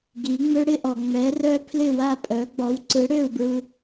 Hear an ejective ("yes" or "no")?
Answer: yes